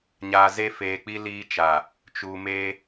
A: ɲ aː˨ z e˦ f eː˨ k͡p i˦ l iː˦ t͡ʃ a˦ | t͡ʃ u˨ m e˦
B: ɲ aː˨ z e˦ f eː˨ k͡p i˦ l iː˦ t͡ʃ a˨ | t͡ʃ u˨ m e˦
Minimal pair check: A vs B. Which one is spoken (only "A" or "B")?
B